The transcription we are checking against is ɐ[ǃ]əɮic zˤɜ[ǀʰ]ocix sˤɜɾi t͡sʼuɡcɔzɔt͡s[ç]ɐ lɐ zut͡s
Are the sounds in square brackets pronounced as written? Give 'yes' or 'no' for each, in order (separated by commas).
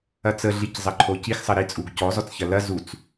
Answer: no, no, yes